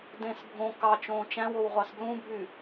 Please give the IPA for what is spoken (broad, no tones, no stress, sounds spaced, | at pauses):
d ẽ s bʱ õ k ɑ t͡ʃ õː t͡ʃ æ̃ w o w ʁʷ ɑ s b l ũ bʱ y